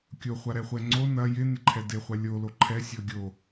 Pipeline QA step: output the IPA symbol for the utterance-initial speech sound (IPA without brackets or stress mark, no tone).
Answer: kʲ